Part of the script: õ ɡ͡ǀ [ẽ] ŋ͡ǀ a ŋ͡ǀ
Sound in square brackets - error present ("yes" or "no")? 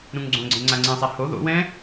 no